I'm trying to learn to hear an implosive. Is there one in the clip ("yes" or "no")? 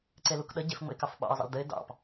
yes